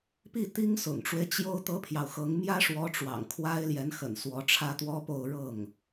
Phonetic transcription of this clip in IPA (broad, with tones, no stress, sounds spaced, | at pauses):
p i˥˩ t̪ i˥ ŋ s ʊ̰˨˩ ŋ ʈ͡ʂ w e˦ ɪ̯ t͡ɕ j o˥ ʊ̯ t̪ ɤ˥ pʰ j ɑ˨ ʊ̯ x ɤ˧˥ ŋ m j ä˥ ʂ w ɔ˧˥ ʈ͡ʂ w ɑ̰˨˩ ŋ kʰ w a˥ ɪ̯ l j ɛ˧˥ n x ə̰˨˩ n s w ɔ˧˥ ʈ͡ʂʰ ä˥ t̪ w ɔ˥ p o˥˧ ʊ̯ ɻ ɤ˥˩ ŋ